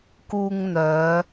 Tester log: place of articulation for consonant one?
velar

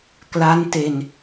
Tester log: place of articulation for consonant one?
velar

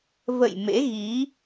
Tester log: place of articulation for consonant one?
labial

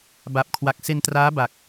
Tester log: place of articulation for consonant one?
labial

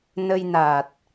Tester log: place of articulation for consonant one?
alveolar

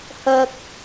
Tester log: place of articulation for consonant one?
glottal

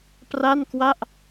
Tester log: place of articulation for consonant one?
labial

